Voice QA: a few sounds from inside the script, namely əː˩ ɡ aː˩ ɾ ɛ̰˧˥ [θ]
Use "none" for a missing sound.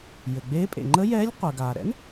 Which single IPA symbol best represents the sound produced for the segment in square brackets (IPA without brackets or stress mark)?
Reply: n